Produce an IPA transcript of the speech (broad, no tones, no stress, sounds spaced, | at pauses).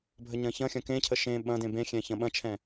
bʱ ə ɲ ɐ̃ ç ɐ̃ xʲ ɐ̃ k ẽ cʰ ə ʃ ẽ ɓ ɐ̃ d ẽ b ẽ xʲ ɛ̃ ç ɐ̃ ɓ ɐ̃ t͡ʃʰ ɛ̃